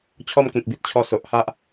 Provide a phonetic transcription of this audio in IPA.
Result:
t͡ɕʰ ɔ˥˧ m k ĩ˨ k̚ b i˦ t̚ t͡ɕʰ ɔ˥˧ s o˨ ʔ h a˦ ʔ

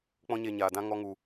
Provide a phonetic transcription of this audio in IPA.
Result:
k͡p ɔ̃˦ ɲ e˧ ɲ aː˨ d ã˦ ŋ ɔ˧ ŋ u˨

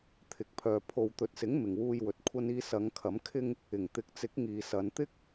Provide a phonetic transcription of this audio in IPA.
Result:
t̪ʰ ɪ˨ k̚ pʰ œː˨ pʰ o˨ w t̪ ɵ˨ t̚ s ɪ˨˥ ŋ m ɪ˨ ŋ w uː˧ j w ɵ˨ t̚ kʷʰ ɐ˧ n iː˧ s ɐ˨˧ ŋ kʰ ɐ˨˥ m kʰ ɪ˥ ŋ | ɪ˨˩ ŋ t̪ ɪ˨˥ k̚ t͡s ɪ˨˥ k̚ ŋ iː˨ s ɐ˨˧ n t̪ ɪ˥ k̚

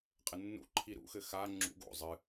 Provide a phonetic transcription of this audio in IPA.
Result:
qʼ ɘ nː ṵ ǃʰ i ɾ ṵ x ɘ x a ŋ͡ǁ ṵ ɡ o̰ zˤ ɨ

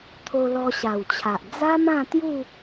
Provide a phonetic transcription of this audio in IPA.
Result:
t̪ʰ o˧ l ɔ˧ ɕ a˨˩ w t͡ɕʰ a˨ ʔ d͡z a˦ m ã˥˧ t̪ j u˥˧

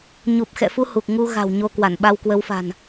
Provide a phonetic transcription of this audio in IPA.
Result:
ɲ u˨˩ p̚ x ɛ̰˧˨ f u˧ h u˨˩ k̚ ŋ u˧ ɣ a̤˨˩ w ɲ o˧ k w a˧˩ n ɓ a˧ w k w ə˨˦ w f a̤˨˩ n

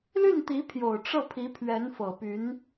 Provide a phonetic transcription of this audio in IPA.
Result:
l y˥˩ n t̪ i˧˥ pʰ j o˨˩ ʊ̯ ʈ͡ʂ ɤ˥˩ pʰ i˧˥ pʰ ɥ ɛ˧˥ n f ɤ˨˩ p y˧˥ n

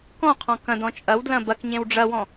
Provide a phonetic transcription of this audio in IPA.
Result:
k ɔ̃ qʰ ɔ̃ k ɐ̃ d ɔ̃ t͡ʃʼ ɐ w d l ɐ̃ b ɐ k ɲ ẽ w ɖ͡ʐ ɐ w ɔ̃

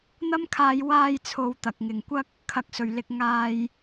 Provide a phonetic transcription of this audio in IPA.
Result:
n̪ ɐ˥ m kʰ aː˧ j w aː˧ j t͡sʰ o˨˧ w t̪ ɐ˨ k̚ ŋ ɪ˨ ŋ kʷ ɐ˥ k̚ | kʰ ɐ˨ k̚ s ɵ˨˩ ɥ l ɪ˨ k̚ ŋ aː˧ j

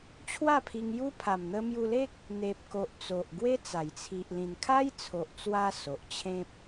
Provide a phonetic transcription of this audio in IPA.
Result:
t͡ɕʰ w a˥˧ pʰ i˧ ŋ j u˦ pʰ a˨˩ m n̪ ə˧ m j u˧ l e˦ k̚ | n̪ e˨ p̚ k o˨ ʔ t͡s o˨ ʔ ɡ w e˦ t͡s a˨˩ j t͡sʰ i˨ ʔ l ĩ˨˩ n kʰ a˦ j t͡sʰ o˨ ʔ t͡s w a˧ s o˨ ʔ t͡ɕʰ ẽ˦ p̚

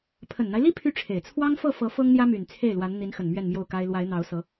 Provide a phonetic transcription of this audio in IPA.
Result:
pʰ ə˨˩ n n̪ a˦ ɪ̯ l i˥ pʰ y˥˩ ʈ͡ʂʰ e˨˩ ɪ̯ t͡sʰ w ɑ˥ ŋ f ɤ˥˩ f ɤ˧˥ f ɤ˥ ŋ n̪ j ä˥ m y˨˩ n t͡sʰ e˥˩ ɪ̯ l w a˧˥ n n̪ i˧˥ n x ə˨˩ n m ɥ ɛ˥˧ n m j o˥˩ ʊ̯ k a˥ ɪ̯ l w a˧˥ ɪ̯ n̪ ɑ˧˥ ʊ̯ s ɤ˧˥

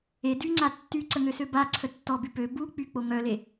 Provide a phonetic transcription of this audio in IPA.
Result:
e d y ŋ͡ǀ a tː y ǀ ə ŋ ø s ø b a ǀʰ ə tː ɔ b y p ø b u k͡p y k͡p o ŋ œ l e

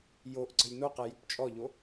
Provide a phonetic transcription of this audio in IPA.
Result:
j o ʔ ǀ ə̤ lʲ n o q ɛ j ʉ p t͡ʃʼ ɔ ʎ o

